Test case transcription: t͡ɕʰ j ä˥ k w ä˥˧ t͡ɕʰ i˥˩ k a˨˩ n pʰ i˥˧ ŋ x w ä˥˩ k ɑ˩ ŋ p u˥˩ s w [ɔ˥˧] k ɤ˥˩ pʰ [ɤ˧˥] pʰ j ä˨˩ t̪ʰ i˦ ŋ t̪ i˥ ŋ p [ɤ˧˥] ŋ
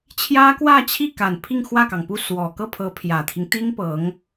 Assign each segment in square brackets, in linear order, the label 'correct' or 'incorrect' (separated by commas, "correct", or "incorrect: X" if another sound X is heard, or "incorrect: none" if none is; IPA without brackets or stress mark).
incorrect: ɔ˨˩, correct, correct